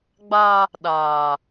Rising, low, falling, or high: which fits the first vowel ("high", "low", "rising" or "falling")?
high